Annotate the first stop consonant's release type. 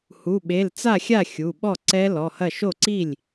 implosive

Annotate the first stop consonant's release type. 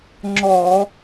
click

